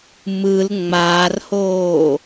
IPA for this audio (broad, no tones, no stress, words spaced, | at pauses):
mɯl ŋ͡maːrhoː